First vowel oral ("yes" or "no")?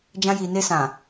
no